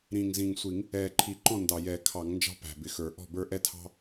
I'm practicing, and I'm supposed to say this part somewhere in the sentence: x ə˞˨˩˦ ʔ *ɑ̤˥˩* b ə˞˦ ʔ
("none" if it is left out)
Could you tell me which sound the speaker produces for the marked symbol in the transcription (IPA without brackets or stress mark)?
ɔ̤˥˩